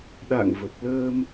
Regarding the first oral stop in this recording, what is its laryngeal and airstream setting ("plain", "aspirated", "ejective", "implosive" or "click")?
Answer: implosive